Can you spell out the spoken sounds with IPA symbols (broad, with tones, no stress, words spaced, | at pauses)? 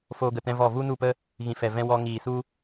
foː˧ɡə˨tɛ̃˧vɔ˦˨ vu˦nu˦˨pə˦ | ɣĩ˨fɛ˨vɛ̃˧ wɔ˧ ŋiː˨su˦